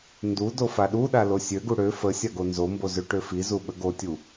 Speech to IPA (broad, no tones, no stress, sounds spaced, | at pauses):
n d u d o f a ɗ u ɗ a l o sʲ ø ɡ u ɽ ø f ə sʲ a ɡ o n z o m b o z ø ʈ ø f i z u ɓ ə ɡ o tʲ u